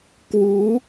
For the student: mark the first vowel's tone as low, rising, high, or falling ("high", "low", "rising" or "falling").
rising